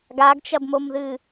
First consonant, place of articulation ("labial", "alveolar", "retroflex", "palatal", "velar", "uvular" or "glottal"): velar